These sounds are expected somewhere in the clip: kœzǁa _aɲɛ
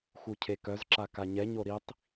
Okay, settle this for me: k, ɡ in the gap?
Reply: k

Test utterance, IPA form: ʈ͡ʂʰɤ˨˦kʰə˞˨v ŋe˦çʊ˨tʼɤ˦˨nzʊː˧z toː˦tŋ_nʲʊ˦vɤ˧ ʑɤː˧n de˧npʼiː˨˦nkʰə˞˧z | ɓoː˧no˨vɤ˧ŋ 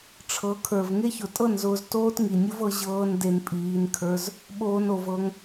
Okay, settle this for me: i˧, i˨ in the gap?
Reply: i˨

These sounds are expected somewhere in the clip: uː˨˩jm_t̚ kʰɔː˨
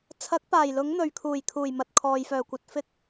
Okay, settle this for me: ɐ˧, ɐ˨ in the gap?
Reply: ɐ˨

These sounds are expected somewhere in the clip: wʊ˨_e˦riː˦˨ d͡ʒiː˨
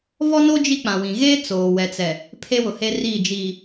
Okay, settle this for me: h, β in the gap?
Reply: h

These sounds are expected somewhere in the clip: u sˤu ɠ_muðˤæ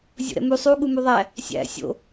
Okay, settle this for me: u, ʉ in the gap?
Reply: u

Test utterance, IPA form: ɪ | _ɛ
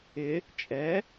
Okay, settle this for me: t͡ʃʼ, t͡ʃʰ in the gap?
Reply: t͡ʃʼ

